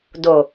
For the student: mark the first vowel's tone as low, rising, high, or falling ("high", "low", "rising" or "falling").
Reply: low